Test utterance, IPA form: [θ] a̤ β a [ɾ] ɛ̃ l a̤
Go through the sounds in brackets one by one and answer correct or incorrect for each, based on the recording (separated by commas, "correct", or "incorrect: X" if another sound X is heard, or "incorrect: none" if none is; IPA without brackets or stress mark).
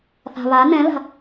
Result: correct, incorrect: n